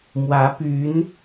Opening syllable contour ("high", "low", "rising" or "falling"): rising